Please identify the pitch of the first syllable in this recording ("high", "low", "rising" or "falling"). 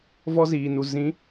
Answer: high